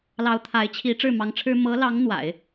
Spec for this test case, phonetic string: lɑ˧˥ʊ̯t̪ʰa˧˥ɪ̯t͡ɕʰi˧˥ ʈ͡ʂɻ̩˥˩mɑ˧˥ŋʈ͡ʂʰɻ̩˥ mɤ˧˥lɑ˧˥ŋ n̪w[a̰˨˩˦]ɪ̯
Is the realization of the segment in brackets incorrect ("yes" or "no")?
no